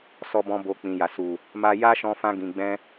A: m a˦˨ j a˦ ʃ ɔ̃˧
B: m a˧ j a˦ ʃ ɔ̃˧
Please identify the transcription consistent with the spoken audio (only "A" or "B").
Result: B